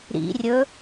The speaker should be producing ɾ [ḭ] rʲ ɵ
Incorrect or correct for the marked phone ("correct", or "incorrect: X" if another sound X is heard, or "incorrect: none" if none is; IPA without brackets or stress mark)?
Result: correct